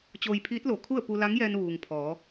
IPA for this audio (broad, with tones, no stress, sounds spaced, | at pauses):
t͡ɕ oː˧ j pʰ iː˧˥ t̚ l o˩˧ kʰ u˥˨ ə̯ p u˧ l a˧˥ ŋ j ɛː˧ n ʋ uː˩ ŋ pʰ ɔː˩˧